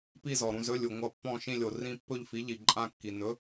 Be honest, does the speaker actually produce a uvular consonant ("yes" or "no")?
no